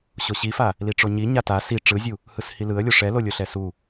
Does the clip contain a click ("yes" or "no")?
no